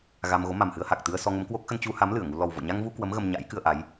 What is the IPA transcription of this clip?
ɣa˧m ɣo˨˦ma˨˩mhɨ˧ə̯ha˨˩k̚ t̪ɨ˧ə̯sɔ˧ ŋə˨˦mkwo˦˥k̚ xə˧nt͡ɕu˧ha˨˦m lɨ˧˩ə̯ŋu˧ lɔ˨˩wvo̰˧˨ɲa˧ŋvu˧ kwə˨˦m ɣə˧mɲa̰˧˥jkɨ˧ə̯ ʔa˨˦j

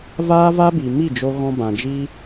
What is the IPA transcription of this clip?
vaː˦va˦bi˨ mi˦˨d͡ʒo˧ɣɔ̃˧ bã˨d͡ʒi˦

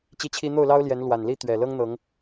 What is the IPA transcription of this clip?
t͡ɕi˦t͡ɕʰi˦ n̪o˥˨ʊ̯lɑ˦ʊ̯ljɛ˨˦n lwa˨˩nli˥˨t̪ɥɛ˨˩ lɤ˦ŋn̪ɤ˨˦ŋ

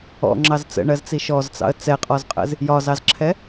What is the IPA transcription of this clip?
ɔ̰ŋ͡ǁɑz t͡sə̰ɳɜzt͡si ʃɔzt͡sɑ̰ə̯ t͡sɛqʼɔzqʼə̰z | jɒzɑzǁʰɛ

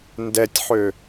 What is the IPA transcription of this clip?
ndɛtʲħø

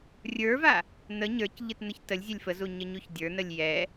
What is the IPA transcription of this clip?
rʲə˞va | n̪ə ɲə˞cʎɨt n̪əçtəlʲzʲɛlʲ fəzu ɲəɲuçdʲə˞nəlʲ jɛ

